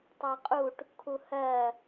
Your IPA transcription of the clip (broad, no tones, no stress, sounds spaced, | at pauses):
tˤ ɑ qʼ u ʈ | kʰ u h ɜ